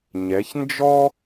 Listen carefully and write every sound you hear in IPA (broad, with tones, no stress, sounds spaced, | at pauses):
ɲ ɛ˩˧ ç n d͡ʒ ɔ˥